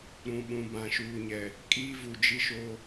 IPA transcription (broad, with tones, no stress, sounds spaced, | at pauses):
ɾ ũ˨ ɓ ũ˨ b ã˨ ʃ uː˨ ɲ ɛ˨ | kʼ iː˦ v u˨ d͡ʒ i˦ ʃ oː˦